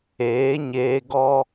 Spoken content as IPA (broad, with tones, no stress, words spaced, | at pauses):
eː˨˦ɲeː˧ɡɔ˦